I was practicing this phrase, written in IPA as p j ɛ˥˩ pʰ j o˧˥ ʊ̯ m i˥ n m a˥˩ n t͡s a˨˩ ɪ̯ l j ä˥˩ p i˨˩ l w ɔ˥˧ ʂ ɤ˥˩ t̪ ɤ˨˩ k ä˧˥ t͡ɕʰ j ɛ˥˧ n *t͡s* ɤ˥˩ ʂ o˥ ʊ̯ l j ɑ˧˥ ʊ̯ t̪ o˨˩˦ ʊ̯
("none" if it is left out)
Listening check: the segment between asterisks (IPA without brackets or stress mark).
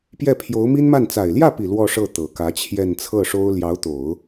t͡sʰ